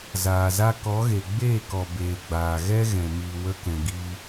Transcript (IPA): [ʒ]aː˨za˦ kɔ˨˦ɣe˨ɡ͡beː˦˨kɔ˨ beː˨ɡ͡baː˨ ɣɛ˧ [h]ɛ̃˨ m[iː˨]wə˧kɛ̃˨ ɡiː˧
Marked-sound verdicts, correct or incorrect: incorrect, incorrect, correct

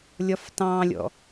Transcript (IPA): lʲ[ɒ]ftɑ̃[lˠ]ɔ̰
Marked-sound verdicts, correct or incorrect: correct, incorrect

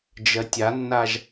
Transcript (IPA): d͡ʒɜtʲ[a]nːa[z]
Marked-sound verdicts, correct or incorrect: correct, incorrect

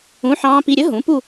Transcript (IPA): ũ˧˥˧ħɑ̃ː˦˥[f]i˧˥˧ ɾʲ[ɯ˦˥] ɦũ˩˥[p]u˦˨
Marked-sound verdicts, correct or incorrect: incorrect, incorrect, correct

